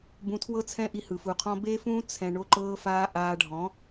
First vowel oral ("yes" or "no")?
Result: no